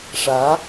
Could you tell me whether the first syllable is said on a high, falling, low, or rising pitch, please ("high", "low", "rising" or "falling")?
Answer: rising